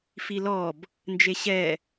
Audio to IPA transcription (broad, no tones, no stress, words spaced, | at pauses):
filɔb | nd͡ʒeɕɛ